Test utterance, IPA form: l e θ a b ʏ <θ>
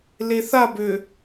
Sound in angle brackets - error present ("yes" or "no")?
yes